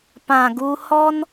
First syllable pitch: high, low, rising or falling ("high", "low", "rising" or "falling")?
low